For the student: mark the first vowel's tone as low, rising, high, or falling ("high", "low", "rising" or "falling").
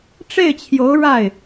falling